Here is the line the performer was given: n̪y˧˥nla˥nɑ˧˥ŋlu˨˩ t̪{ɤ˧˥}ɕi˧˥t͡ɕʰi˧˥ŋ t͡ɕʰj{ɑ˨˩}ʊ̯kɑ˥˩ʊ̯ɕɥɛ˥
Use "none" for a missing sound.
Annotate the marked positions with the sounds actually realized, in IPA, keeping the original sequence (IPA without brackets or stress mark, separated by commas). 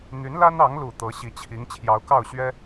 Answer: ɤ˧˥, ɑ˧˥